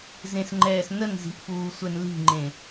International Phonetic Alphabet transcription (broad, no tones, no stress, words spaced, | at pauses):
zẽsŋ͡ǃɛːsnənzi̤ʔ fuːsʷɛnli̤ŋ͡ǃẽ